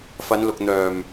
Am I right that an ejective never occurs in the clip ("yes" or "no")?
yes